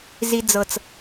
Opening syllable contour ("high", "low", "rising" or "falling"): low